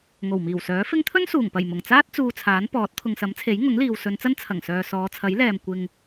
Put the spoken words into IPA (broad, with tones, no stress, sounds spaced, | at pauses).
ŋ o˨˩ w m iː˨˩ w s œː˨˥ f ɪ˥ ŋ t̪ʰ ɵ˥ n s uː˨˩ ŋ p ɐ˨˩ j m ʊ˨˩ ŋ t͡s aː˥ t̚ t͡s uː˧ t͡sʰ aː˨˥ n p ɔː˨˥ t̚ t̪ʰ ʊ˨ ŋ s ɐ˨˥ m t͡sʰ e˨˥ j ŋ ʊ˨˥ ŋ l iː˨ w s ɵ˨˧ n t͡s ɐ˥ n t͡sʰ ɐ˨˩ ŋ s œː˨ s ɔː˨˧ t͡sʰ ɐ˨˥ j l ɛː˨ m kʷ ɪ˨ ŋ